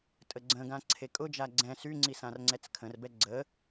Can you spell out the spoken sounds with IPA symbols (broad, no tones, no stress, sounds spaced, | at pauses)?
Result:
tʼ ə ɡ͡ǀ ə̃ ɡ ã ǀʰ e kʼ ʊ d͡ʒ a ɡ͡ǀ ɛ̃ s y ŋ͡ǀ i s ã r ŋ͡ǀ ɛ t͡s kʰ ə̃ r b ɛ ɡ͡ǀ ə